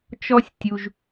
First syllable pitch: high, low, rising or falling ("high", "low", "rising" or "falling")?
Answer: high